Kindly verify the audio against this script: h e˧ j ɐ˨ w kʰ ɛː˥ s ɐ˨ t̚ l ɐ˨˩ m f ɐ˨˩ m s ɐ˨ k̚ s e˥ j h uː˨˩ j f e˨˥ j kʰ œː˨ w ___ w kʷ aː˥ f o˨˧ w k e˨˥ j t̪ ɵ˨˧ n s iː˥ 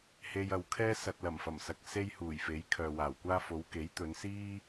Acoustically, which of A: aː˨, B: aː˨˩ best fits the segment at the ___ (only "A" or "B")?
B